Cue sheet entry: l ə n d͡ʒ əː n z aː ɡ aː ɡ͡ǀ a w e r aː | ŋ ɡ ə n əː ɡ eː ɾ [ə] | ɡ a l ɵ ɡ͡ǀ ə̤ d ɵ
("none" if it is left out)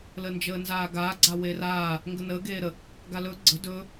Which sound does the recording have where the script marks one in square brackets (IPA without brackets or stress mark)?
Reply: ə